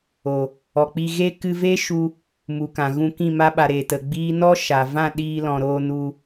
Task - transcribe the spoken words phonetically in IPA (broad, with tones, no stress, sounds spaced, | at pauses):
o˨ | ɔ˨ k͡p i˧ ɣ e˦ k ɨ˧ v e˦ ʃ u˧ | m u˨ k ã˨ ɣ ũ˧ k ĩ˦˨ m a˧ ɓ a˨ ɾ e˨ t ə˨ ɡ͡b iː˦ n ɔ˦ ʃ a˨ v ã˦˨ ɗ iː˧ l ɔ̃˨ ɾ oː˧ n u˧